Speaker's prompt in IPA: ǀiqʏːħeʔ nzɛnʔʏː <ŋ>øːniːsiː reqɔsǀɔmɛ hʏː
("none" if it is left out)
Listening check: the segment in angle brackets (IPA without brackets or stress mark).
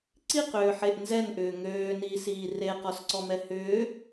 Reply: ŋ